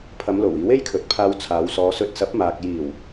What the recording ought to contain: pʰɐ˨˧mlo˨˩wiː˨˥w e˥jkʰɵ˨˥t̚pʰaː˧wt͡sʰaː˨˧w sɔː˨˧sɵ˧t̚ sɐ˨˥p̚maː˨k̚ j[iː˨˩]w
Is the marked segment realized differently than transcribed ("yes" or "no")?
no